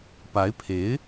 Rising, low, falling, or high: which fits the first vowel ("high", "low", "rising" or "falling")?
rising